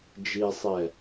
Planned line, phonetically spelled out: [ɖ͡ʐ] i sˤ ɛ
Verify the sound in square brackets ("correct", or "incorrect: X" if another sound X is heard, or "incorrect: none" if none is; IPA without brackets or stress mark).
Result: incorrect: d͡ʒ